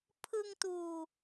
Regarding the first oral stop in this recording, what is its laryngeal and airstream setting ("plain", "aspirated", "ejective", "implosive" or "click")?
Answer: aspirated